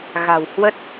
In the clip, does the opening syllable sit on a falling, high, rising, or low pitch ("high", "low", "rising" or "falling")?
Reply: low